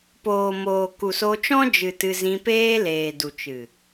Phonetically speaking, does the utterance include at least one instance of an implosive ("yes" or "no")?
no